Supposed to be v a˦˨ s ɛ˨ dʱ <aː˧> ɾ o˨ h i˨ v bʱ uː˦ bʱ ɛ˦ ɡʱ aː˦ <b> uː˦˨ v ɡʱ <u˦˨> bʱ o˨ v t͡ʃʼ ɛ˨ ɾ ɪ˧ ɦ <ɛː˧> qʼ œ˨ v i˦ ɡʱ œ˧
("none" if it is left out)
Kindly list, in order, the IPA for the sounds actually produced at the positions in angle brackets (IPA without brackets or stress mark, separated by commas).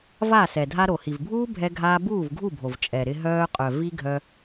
a˧, b, u˦˨, œː˧